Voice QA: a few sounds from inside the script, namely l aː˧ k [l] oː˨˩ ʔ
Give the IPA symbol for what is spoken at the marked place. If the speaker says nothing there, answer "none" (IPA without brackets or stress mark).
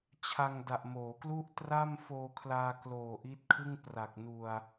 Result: l